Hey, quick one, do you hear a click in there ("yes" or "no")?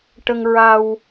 no